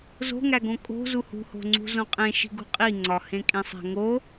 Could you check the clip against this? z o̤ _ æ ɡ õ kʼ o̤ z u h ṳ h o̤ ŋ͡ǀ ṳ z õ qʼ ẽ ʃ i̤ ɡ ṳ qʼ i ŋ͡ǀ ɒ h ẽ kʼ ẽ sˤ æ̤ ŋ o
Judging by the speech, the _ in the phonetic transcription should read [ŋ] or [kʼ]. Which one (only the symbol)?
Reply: ŋ